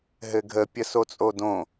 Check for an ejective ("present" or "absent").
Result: present